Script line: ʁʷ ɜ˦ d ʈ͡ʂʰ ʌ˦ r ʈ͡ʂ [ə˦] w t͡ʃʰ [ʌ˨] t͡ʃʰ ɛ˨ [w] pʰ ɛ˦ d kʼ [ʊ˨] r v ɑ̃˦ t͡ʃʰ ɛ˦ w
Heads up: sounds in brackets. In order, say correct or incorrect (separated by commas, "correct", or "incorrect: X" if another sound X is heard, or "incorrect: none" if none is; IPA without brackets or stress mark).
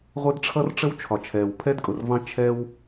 correct, incorrect: ɒ˨, correct, correct